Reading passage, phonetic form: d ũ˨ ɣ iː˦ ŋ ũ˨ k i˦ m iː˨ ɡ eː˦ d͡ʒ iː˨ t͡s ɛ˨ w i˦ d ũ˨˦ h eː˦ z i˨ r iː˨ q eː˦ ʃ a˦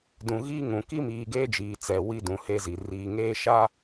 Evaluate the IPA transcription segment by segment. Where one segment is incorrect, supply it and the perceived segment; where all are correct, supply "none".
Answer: q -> ŋ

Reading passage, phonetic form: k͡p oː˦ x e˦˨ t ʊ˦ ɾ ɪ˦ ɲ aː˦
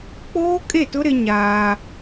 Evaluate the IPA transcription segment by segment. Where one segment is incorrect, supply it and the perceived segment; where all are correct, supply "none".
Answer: x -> kʼ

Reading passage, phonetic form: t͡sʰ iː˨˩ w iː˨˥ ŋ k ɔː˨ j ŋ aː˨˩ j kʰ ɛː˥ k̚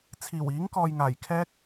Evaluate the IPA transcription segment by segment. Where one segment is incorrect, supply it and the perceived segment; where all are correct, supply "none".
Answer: none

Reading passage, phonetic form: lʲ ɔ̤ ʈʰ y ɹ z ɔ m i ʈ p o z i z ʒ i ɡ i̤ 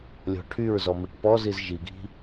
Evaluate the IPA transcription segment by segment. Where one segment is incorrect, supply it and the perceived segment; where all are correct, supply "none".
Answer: o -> ɔ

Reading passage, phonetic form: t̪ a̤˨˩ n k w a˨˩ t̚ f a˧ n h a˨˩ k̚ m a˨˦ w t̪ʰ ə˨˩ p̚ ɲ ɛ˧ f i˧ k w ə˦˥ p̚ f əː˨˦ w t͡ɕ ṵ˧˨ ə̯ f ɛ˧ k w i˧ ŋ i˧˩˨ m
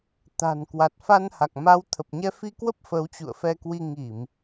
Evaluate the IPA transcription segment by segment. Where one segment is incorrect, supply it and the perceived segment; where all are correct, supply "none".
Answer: none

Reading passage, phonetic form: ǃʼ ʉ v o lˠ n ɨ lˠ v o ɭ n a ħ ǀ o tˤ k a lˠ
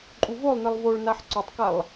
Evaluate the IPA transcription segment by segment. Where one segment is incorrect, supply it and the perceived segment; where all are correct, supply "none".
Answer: ʉ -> u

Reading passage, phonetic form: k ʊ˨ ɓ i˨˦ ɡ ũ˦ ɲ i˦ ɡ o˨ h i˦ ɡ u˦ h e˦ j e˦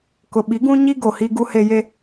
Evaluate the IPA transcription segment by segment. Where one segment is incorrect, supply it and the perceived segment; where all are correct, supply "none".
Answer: none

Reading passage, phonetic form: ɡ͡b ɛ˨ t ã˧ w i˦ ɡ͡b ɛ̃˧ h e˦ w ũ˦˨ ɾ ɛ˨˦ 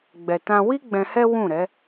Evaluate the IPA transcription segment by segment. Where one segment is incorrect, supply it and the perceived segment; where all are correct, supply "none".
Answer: e˦ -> ɛ˦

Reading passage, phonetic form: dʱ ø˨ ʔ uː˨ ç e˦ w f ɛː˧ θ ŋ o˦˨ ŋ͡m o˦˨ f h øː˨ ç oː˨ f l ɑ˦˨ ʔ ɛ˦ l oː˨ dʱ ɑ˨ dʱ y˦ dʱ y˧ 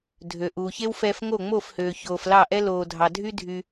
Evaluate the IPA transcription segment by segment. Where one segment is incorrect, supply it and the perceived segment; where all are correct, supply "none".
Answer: θ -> f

